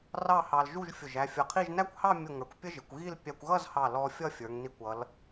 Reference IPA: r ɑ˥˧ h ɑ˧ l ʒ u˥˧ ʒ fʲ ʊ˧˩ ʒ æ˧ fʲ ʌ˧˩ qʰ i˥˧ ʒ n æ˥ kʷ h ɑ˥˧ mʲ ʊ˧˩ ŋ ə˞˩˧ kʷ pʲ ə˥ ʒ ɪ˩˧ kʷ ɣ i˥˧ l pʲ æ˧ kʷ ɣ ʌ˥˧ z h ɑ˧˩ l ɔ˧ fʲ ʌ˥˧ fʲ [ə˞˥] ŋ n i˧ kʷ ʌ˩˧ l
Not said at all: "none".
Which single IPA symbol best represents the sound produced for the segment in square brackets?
ə˞˩˧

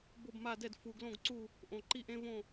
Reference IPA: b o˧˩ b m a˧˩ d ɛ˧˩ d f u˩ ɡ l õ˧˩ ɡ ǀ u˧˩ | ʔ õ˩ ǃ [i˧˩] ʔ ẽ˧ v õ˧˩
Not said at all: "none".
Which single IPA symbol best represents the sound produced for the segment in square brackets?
i˧˩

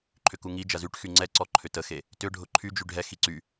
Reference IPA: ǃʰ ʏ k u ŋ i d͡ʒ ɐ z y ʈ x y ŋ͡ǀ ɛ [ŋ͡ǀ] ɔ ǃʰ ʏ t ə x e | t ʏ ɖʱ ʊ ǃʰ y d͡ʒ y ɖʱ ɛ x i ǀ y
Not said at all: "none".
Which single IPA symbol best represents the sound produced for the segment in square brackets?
ǀ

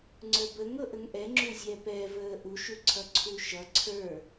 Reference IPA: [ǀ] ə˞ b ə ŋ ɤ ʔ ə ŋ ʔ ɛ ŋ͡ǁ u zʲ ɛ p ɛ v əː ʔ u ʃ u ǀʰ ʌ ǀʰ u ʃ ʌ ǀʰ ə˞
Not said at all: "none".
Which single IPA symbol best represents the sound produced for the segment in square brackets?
ŋ͡ǀ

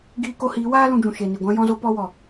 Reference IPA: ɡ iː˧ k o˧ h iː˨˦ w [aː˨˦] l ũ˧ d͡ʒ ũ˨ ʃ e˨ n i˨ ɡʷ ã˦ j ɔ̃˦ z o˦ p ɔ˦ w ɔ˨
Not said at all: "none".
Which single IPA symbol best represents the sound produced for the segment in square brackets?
aː˦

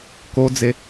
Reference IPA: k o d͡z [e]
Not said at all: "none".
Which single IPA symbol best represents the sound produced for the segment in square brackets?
e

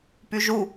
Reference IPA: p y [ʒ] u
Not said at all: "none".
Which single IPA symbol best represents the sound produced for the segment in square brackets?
ʒ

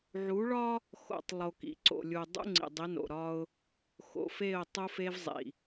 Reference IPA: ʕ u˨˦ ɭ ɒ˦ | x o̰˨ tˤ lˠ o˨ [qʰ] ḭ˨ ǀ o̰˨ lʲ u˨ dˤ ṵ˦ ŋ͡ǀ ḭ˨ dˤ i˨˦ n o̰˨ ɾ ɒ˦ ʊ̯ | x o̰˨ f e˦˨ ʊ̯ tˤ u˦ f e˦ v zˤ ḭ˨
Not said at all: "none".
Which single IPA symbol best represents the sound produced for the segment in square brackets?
k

